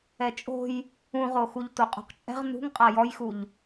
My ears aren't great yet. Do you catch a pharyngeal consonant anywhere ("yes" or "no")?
no